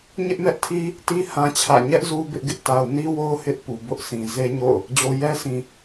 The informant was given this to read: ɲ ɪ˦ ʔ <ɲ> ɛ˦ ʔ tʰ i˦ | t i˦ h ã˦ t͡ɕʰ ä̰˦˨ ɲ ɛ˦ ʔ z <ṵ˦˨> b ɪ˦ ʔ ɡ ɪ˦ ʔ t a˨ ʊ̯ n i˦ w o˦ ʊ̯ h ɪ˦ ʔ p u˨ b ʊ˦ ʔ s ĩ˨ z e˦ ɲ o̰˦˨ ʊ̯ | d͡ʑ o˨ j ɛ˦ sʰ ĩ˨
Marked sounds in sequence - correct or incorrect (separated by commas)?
incorrect, incorrect